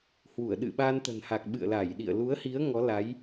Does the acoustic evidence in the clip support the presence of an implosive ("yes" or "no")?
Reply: yes